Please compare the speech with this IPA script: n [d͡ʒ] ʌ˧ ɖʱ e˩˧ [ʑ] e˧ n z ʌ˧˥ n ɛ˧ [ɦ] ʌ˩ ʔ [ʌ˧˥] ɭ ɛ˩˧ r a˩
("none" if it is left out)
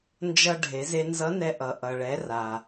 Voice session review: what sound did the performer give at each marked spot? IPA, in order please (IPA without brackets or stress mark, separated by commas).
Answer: d͡ʒ, z, ʔ, ʌ˩